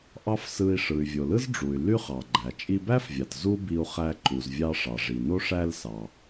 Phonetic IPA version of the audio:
ʔ ɑ˥ f s ɯ˧ i̯ ʂ ɯ˩ y̯ vʲ o˩ l ɯ˥ z ɖ͡ʐ u˩ y̯ l y˥ χ ɑ˩ ɡ͡ǃ æ˩ t͡ʃʼ i˧ b æ˥ f vʲ ɑ˩ t z u˥ b i˧ u̯ χ æ˧ ǃ u˩ z vʲ ɑ˧ ʂ ɑ˩ ʐ i˩ n o˥ ʂ æ˧ l s ɑ˩

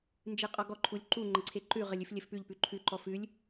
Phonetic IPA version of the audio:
n d͡ʒ ɨ qʼ ɔ ɡ ɔ ǃʰ u lʲ ǃ u ŋ͡ǃ ə ǀʰ e ǃ ʉ ʁ ə lʲ ʉ f lʲ ɘ f p ʉ ʎ p ʉ ǃʰ ʉ ǃ ɔ f ʉ lʲ

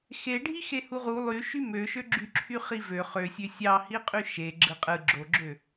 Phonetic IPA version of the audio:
x e ɖʱ i x e h u ʁ u lˠ y ʃ y m ø ʃ ø ɡ͡ǁ y ǁʰ y χ i v ø χ ø sʲ ø sʲ ɑ h i qʼ y ʃ e ɡ͡ǁ ɯ qʼ ɯ ɡ͡ǁ o ɡ͡ǁ ø

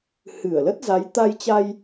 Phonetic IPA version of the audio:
h ɨ˧˩ ə̯ l ə˦˥ t̚ z a˨˦ j t̪ a˧ j t͡ɕ a˧ j

